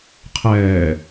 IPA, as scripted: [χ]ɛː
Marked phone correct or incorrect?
incorrect